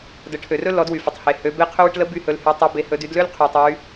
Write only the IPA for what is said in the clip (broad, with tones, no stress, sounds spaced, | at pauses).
d ə˩˧ ʈʰ ø˩ r ɵ˥ l ɔ˩˧ d w y˩ f ə˩ tˤ h e˩ h ø˩˧ b e˧˥ qʰ ɵ˧˥ w ɨ˧ ʈ l ə˧˥ b y˧ h ɵ˩˧ l h y˩˧ tˤ e˩˧ b e˩˧ h ɵ˩˧ d y˩˧ d l ø˥ l qʰ y˩ tˤ y˩˧